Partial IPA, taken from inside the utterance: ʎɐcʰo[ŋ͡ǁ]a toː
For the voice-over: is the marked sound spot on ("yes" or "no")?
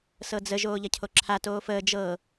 no